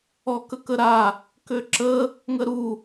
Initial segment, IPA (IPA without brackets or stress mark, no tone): ɔ